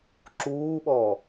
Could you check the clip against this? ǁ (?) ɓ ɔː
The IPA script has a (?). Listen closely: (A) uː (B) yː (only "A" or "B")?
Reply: A